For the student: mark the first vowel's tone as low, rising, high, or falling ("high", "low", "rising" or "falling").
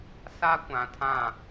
high